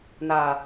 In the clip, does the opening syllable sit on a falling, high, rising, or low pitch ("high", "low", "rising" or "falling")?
low